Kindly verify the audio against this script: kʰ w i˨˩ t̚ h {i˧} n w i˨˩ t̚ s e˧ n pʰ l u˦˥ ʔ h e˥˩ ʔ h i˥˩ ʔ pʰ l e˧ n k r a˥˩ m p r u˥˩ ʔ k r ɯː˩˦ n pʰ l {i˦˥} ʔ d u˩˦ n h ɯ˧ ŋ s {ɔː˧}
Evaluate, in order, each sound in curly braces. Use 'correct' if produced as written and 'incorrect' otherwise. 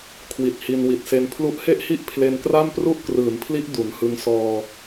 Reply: correct, correct, correct

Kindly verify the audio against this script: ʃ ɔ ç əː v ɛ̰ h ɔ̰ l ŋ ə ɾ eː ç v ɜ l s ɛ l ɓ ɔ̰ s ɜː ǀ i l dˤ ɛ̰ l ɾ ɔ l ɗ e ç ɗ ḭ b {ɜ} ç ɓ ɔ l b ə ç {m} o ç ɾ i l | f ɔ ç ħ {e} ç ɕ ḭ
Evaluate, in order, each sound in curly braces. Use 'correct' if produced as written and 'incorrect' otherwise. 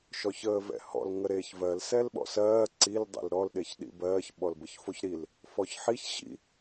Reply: incorrect: ɜː, incorrect: f, incorrect: i

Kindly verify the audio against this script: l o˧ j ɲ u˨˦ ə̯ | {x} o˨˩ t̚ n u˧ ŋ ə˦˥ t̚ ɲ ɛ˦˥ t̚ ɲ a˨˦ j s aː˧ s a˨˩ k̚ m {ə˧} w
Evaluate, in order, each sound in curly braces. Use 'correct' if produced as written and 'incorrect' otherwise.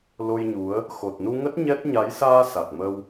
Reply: correct, correct

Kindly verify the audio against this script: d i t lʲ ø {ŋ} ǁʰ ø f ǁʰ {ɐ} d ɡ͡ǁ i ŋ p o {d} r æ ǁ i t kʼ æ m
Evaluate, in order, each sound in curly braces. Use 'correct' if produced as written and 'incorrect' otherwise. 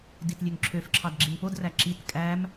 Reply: correct, incorrect: ɑ, correct

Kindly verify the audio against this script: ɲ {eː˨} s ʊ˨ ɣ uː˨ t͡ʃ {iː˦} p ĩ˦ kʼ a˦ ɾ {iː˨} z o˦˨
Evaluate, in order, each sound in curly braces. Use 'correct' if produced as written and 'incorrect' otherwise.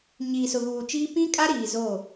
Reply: incorrect: iː˨, correct, correct

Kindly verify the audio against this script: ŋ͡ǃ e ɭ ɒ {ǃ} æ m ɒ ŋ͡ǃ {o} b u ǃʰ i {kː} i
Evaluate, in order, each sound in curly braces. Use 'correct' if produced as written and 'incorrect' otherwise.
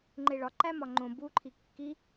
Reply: correct, incorrect: õ, correct

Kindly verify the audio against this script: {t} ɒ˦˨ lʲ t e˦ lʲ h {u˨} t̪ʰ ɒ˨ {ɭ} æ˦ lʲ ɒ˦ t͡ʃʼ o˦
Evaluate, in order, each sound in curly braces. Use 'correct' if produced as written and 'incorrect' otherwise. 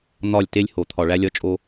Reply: incorrect: n̪, incorrect: o˨, correct

